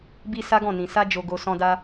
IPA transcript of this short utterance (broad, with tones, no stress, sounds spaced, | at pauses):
b i˧ s a˦ ɡ ɔ̃˦˨ n ĩ˨ s a˧ d͡ʒ o˨ ɡ o˨ s ɔ̃˧ d a˧